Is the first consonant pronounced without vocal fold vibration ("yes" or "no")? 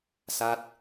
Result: yes